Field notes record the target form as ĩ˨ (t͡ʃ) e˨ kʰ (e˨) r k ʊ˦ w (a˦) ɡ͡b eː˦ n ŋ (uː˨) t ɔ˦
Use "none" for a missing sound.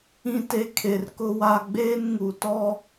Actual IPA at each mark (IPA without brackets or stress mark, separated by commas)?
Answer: t, e˨, a˦, u˨